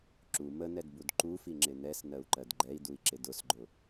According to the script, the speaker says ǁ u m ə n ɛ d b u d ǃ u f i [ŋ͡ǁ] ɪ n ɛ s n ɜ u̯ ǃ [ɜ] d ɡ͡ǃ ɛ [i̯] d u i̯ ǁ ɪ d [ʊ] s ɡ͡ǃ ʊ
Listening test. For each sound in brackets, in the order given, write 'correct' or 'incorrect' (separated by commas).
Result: correct, correct, correct, correct